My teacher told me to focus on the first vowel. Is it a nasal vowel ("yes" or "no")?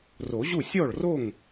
no